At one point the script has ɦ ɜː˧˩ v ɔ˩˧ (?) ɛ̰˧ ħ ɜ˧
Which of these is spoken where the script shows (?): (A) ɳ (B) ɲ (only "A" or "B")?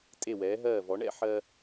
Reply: A